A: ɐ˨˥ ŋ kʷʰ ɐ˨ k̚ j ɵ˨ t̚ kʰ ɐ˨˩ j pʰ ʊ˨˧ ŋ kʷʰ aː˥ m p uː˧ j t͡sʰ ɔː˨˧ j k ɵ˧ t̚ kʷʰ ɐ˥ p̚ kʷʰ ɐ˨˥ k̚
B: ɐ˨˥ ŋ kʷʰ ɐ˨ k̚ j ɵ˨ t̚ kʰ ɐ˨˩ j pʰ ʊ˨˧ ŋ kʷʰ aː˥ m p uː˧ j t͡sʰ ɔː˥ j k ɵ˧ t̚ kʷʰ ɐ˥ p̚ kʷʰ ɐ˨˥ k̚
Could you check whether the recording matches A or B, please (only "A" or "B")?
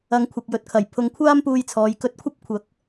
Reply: A